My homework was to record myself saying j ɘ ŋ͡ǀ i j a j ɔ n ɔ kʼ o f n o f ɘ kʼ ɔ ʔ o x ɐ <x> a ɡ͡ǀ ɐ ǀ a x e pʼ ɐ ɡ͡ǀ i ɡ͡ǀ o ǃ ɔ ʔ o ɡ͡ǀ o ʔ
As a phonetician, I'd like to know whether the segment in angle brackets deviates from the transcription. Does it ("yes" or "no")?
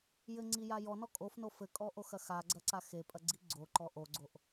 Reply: no